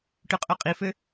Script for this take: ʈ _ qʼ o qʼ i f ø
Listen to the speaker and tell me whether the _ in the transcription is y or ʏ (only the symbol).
y